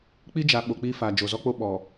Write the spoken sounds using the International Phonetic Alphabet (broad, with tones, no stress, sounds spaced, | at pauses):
k͡p i˦ d͡ʒ a˨ ɓ o˨ k͡p iː˦ f aː˨ d͡ʒ o˨ z ɔ˦ k͡p o˦ ɓ ɔ˨